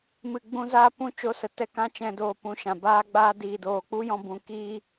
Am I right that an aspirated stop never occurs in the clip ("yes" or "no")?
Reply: yes